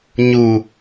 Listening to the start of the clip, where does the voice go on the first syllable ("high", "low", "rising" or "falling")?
low